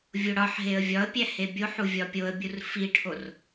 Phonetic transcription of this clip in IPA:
vʲ o ɽ ɒ ħ ɦ e ə̯ vʲ ɒ ə̯ pʲ æ h e bʲ o ħ u vʲ ɒ pʲ o ə̯ bʲ u r f i ʈʰ o r

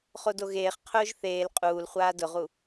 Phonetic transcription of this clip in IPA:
χ o d o ɣ eː χ qʰ ʊː ʒ θ eː l qʼ uː l χʷ aː d ʊ ʁ u

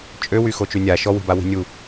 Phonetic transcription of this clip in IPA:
t͡ʃʼ ø w y x o t͡ʃ y nʲ a ʃ ɔ w i̤ b a w i̤ nʲ u

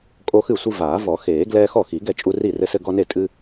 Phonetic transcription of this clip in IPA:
kʼ o˦ x ɨ˥˩ sʷ ɨ˦ v aː˨˩˦ v ɔ˨˩˦ x eː˨˩˦ ɡ l ɛː˦ x ɔ˥˩ x i˨˩˦ ɡ ɛ˥˩ t͡ʃʼ u˦ r i˥˩ r ɘ˦ s ɘ˦ ɡ ɔ˦ n e˥˩ tʼ ɨ˦

